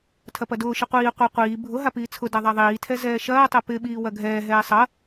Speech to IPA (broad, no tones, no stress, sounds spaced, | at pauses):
tʰ ɐ p ɐ d ʊː ʃ ɪ qʷ iː qʷ i qʷ iː bʱ ʊ ɦ a p iː t͡sʰ ʊ d a ðˤ a ðˤ iː tʰ ɛ z ɛː ʃ ɐː tˤ ɛ p ɪ ɓ iː w ɐ ɡʱ ɛː ɦ ɛː sˤ ɐ